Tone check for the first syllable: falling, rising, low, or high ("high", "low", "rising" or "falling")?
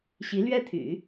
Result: rising